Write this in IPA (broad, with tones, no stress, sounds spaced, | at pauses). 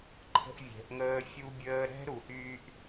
ǃʰ ə̤˦ ʔ vʲ ɛ̤˨˦ ʔ ŋ əː˦ fʲ u˦ bʲ əː˦ ɾ ɛ̤˦ ɾ u˨ h yː˦ ʔ